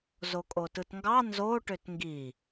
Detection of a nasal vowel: absent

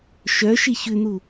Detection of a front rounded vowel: present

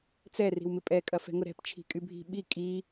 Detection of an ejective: present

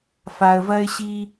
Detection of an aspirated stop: absent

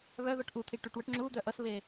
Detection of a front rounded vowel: present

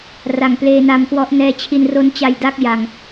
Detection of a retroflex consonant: absent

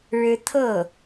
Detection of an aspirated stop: present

